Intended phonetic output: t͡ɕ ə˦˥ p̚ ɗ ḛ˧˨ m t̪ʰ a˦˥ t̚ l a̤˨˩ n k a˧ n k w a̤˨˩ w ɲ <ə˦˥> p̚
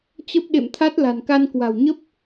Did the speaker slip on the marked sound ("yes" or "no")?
no